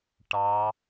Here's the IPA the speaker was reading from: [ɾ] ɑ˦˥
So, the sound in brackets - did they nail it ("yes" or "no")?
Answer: no